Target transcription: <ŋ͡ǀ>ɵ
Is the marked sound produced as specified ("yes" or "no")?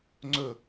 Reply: yes